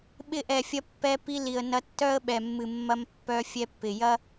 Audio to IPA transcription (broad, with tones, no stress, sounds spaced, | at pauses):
ɓ ɪ˧ ʔ ɛ˨ fʲ ɐ˧ pː ɛ˧ p i˧ l i˨ ə̯ n ɐ˧ tː œ˦ ə̯ ɓ ɛ˨ mː ɨ˨ mː ɐ˧ m pː œ˧ fʲ ɛ˧ pː ɪ˨ j ɐ˦